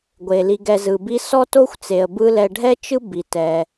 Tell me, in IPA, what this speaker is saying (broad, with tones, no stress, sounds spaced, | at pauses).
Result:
ɡʷ e˩ l i˨ ɡ ɛ˨ z ɯ˩ b i˦ s ɔ˥ t o˥ xʷ t͡s e˨ ə̯ b ɯ˦ l ɛ˨ ɖʱ ɛ˥ t͡ʃ ɯ˥ b i˩ t ɛ˩